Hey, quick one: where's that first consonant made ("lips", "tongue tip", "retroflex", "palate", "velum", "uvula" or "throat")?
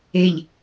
palate